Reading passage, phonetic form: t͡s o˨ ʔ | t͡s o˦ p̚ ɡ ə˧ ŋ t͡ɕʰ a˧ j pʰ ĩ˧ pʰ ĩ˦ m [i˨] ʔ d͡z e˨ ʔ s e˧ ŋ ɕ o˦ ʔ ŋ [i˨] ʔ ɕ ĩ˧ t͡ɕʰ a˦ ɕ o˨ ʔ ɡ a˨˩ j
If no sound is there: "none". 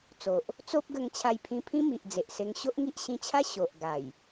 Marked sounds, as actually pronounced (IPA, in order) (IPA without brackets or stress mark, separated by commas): i˨, i˦